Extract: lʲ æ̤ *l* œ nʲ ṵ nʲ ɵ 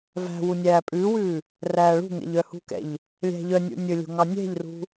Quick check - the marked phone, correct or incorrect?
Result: incorrect